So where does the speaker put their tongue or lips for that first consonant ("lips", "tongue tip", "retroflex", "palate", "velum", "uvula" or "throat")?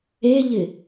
palate